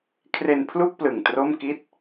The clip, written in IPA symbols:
kʰre˧n pʰlu˥˩k̚plɯ˨˩ŋ tro˥˩mki˥˩t̚

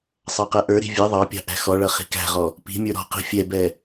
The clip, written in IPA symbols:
sˤɑqɛʔə˞ɾi̤ vʲɛ ðˤɑpʲɑ̤ ʔæ̤xɔɭʌ χi̤kæ̤ʁɔ | pi̤mʲə˞ ɾɔ̤qi̤ fʲɛbɛ

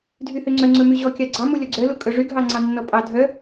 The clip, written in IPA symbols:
dʱyhøŋ͡ǀœ ŋ͡ǀɵmyʑɔ kʲɑɡ͡ǀɑmu lʲɔɡ͡ǀœlu kʼɵʐyɡʱɑ ŋ͡ǀɑnːɔpʼɑ dʱœ

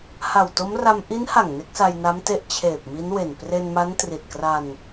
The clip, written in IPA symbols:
ha˨˩wto˦˥mra˧m ʔi˦˥nha˨˩ŋ ne˦˥k̚sa˧jna˦˥mte˦˥ʔ t͡ɕʰeː˨˩p̚mi˦˥nwe˨˩n pre˧nma˦˥n tri˨˩t̚kra˧n

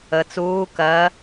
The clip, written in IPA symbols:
ə t͡suː kɜ

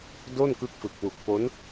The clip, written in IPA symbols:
do˥˩nkɯ˦˥k̚fɯ˨˩k̚wu˨˩k̚ po˦˥n

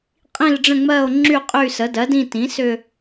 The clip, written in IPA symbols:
qʼĩ˦˨lɖ͡ʐə̃˦˨ ŋ͡mɜ˦˨o̯ŋ͡ǁy˦˨ qʼy˦˨sə˩˥dɜ˩˥dĩ˦˨ tĩ˩˥ sʏ˦˨

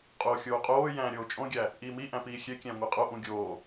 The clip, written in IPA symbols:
qʼoːxʲoːqʼoːjæ̃ː ɾʲoːt͡ʃʼõɡʲæ | ʔiːmiʔæ̃ piːxʲekʲæ̃ ŋʷeqʼoʔũ ɡʲoː

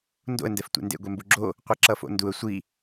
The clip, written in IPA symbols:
ndo̰ə̯ndɛf tʷḛndḛɡʷɛ mbuɡ͡ǁo | qʷɛǁʌfo̰nduə̯ sʷi

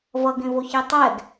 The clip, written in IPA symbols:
vʌɡẽvoçe tˤɛɡ

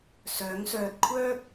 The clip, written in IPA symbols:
sœː˨˥ŋsœː˧t̚ kʷʰœː˥k̚

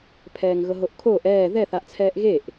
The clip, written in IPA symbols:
pʰɛːŋɣɤɦoʔkʰoːʔ ɛː ðɛθaʔt͡sʰɛːʔ ɣeʔ

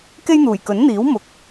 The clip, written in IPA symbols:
ke˥jn̪uː˨˩jkɵ˨˥nn̪iː˨˥w mʊ˨˥k̚

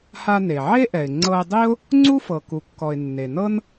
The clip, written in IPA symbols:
ha˧ne˩ʕe˥ʔɛ˩ɪ̯ ŋ͡ǀɤ˧ɪ̯dˤi˥ʊ̯ | ŋ͡ǀu˥fɤ˩ku˩kːɔ˩ɪ̯ nːe˩nɤ˥n

